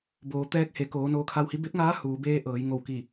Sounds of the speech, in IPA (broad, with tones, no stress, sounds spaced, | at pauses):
b oː˩˧ t̪ ɛː˧˥ k̚ h e˩˧ k oː˩˧ n oː˧ kʰ a˧ w h i˧˥ b e˧˥ p̚ ŋ aː˧˥ h uː˩˧ b eː˧˥ ʔ ɤː˩˧ j ŋ o˧˩ w k i˧˩